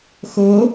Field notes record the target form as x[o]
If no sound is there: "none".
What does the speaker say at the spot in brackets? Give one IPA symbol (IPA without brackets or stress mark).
o